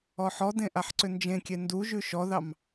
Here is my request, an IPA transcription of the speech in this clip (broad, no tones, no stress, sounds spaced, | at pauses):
ɔ ħ ɔ d ẽ ʔ a ħ ǀ ʏ n d͡ʒ ẽ kʲ e n d u ʒ ʉ ʃ ɔ ð ɑ m